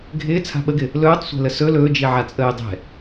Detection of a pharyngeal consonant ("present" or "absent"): present